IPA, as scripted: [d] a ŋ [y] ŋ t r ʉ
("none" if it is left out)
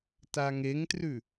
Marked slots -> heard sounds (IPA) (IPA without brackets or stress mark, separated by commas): t, e